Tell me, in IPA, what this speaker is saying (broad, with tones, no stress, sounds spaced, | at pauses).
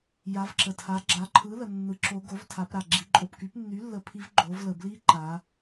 j a˩˧ v ǁ ə˩ tʰ a˩˧ ɡ͡ǁ a˩˧ ǃʰ ɯ˩˥ l ə˩ nː ɯ˩˧ ǁ o˩˧ ɡ o˩˥ v tʰ a˩˧ p ɾ a˩ ɡ͡ǁ i˩˧ ǃʼ o˩ p k y˩˥ p nː y˩˥ lː ə˩˧ pʰ i˩˧ v ɡ͡ǃ o˩˧ v l ə˩ b l i˧˥ ǃ a˩˧